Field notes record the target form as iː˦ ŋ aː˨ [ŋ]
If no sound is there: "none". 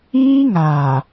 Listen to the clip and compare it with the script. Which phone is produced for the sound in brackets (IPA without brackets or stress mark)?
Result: none